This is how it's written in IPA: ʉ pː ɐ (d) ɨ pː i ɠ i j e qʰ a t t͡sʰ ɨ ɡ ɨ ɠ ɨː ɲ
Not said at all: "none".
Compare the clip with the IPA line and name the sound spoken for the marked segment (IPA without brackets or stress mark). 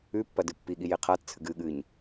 d